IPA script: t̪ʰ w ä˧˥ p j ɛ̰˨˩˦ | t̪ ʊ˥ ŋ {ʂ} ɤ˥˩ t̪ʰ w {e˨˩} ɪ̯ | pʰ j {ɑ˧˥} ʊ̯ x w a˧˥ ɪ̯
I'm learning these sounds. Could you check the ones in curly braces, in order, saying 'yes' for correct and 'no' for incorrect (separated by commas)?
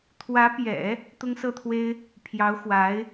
no, no, yes